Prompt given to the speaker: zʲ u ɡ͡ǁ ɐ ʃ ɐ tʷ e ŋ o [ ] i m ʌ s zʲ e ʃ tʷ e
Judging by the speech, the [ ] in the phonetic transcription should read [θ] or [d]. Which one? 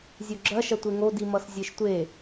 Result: d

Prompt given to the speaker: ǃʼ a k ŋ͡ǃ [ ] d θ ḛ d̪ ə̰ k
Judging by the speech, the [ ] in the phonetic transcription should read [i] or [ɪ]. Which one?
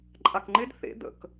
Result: ɪ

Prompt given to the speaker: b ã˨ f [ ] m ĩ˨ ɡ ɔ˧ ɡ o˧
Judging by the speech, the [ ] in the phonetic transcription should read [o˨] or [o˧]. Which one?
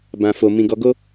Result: o˨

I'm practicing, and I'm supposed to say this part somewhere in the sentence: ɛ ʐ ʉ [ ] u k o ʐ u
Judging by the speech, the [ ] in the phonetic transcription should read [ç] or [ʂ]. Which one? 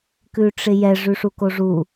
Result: ʂ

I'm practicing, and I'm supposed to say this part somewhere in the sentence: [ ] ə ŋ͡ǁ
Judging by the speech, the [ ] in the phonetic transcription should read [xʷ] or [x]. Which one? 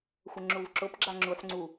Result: xʷ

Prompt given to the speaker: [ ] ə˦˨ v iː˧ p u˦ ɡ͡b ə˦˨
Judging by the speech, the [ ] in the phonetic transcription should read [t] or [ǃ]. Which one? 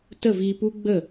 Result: t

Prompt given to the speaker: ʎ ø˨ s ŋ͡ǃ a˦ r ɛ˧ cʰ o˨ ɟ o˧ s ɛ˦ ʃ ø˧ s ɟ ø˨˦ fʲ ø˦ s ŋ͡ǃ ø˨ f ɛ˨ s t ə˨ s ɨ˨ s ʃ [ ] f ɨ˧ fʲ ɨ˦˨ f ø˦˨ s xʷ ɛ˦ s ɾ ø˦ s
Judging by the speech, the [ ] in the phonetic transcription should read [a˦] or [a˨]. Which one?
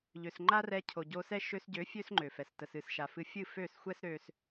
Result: a˨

